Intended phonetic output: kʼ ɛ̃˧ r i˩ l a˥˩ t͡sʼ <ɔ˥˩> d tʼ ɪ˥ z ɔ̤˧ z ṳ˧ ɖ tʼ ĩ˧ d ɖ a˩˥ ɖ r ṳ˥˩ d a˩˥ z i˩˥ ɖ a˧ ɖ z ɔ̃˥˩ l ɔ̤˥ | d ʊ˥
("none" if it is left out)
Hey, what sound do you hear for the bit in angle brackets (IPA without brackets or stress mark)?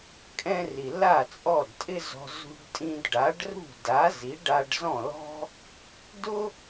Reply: ɔ˥˩